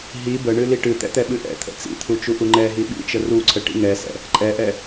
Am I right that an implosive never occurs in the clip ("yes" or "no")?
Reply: no